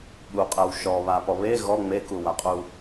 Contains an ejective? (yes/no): yes